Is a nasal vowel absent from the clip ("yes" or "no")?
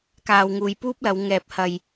yes